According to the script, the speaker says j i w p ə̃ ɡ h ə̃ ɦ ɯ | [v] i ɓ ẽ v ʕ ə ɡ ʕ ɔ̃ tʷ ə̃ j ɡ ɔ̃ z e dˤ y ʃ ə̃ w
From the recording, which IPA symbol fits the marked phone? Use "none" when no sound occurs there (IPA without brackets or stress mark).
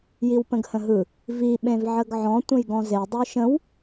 v